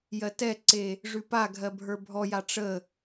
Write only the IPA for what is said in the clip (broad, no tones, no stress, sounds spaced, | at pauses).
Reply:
j ɜ t ɛ ǀ e | ʐ ʉ p a ɡʱ ɜ bʱ ə˞ bʱ ɔ j a ʈ͡ʂ ə